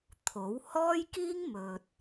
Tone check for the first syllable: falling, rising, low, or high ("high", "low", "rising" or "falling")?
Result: rising